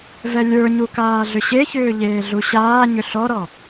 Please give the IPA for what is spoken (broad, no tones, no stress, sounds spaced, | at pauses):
v ɛ lʲ ə˞ ɲ u k aː ɮ ʏ ɕ e ç ʏː ʎ eː ɮ u ɕ aː ɲ ʏ ɬ ɔ ɾ ɔ